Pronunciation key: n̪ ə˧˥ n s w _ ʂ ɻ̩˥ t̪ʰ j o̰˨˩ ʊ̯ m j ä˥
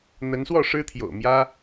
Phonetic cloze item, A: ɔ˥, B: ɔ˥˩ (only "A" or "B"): B